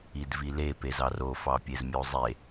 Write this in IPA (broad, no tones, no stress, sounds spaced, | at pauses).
i d v i l e p e z ɑ r o f ɑ pʲ e z mʲ o zˤ e